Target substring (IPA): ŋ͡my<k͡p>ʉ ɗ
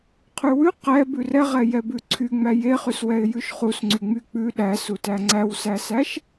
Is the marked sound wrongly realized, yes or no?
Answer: no